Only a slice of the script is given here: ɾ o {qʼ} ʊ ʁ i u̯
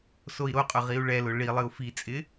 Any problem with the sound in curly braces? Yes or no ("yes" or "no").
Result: no